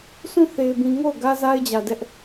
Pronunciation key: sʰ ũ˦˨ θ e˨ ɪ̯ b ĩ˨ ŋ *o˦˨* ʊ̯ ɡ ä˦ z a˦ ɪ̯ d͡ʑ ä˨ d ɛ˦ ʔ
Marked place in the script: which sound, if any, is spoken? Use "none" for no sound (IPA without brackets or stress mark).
o˦˨